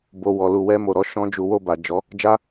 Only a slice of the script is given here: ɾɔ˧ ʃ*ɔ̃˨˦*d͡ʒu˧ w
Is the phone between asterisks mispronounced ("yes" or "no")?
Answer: yes